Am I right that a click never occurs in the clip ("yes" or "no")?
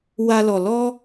yes